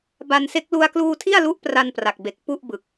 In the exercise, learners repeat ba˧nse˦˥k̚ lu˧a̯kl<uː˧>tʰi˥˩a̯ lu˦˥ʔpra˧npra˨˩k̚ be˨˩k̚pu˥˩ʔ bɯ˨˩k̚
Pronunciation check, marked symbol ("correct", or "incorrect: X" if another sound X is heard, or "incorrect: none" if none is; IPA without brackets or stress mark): correct